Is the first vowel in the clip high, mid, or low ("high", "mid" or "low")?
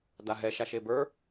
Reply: low